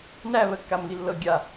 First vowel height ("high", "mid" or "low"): low